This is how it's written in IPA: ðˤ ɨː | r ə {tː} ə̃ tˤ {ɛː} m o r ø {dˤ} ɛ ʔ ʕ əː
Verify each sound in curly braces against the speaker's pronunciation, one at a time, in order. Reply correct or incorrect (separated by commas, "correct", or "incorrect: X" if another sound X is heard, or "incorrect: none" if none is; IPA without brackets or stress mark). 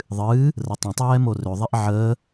incorrect: tˤ, correct, incorrect: ðˤ